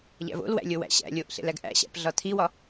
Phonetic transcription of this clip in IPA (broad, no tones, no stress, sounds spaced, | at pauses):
ʎ æ̰ v o̰ l w æ̰ lʲ o w æ̰ ɕ æ̰ lʲ o ʔ ɬ ḛ l æ ɡ ʔ æ̰ ɕ æ̰ p ɮ ɒ tʰ i w ɒ